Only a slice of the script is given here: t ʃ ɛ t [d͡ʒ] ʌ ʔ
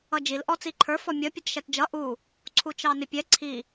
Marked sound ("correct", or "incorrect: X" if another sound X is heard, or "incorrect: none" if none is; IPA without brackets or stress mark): correct